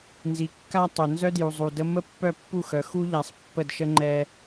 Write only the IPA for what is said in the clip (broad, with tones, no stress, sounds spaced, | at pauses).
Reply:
n z i˨ kː a˦ tˤ œ˨ n z œ˦ d j u˨ zˤ u˨ d ə˦ m ə˦ pː œ˦˨ pː u˦˨ x œ˨ x u˦ ʎ a˨ sˤ pː ə˦˨ d ʃ ə˦ ŋ͡ǃ ɛ˦